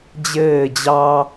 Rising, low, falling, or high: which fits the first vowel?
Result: falling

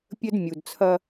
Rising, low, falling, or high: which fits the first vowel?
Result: high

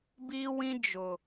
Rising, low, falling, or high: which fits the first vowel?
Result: high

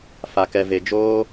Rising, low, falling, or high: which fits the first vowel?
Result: low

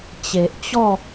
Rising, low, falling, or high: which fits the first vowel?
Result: low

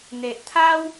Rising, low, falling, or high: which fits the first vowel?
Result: low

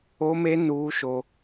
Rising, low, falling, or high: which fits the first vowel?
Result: high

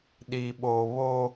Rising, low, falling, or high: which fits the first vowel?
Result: high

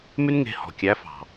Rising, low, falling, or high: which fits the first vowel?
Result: high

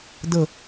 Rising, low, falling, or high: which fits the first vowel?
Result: falling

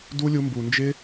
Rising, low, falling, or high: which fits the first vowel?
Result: high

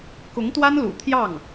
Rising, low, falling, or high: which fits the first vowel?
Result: rising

